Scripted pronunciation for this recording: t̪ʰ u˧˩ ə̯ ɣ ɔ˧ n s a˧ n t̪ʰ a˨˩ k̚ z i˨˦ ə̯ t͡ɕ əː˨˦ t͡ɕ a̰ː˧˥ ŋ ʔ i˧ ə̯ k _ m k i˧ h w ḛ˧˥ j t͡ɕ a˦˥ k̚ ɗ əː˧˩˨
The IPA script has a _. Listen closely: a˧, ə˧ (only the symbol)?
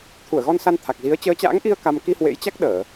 a˧